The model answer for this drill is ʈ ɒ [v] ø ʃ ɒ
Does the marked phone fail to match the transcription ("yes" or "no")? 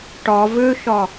no